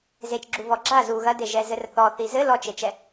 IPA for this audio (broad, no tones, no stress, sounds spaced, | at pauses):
z e t͡ʃ ɡ͡ǁ u v ɔ ɡ͡ǁ a z u ɣ ɐ d e ʒ ɛ z ɘ r θ ɔ θ i z ɘ l ɔ t͡ʃ e t͡ʃ ɛ